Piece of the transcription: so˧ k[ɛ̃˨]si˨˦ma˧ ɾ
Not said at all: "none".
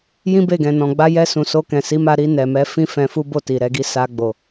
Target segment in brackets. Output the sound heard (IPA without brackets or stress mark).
ɛ̃˨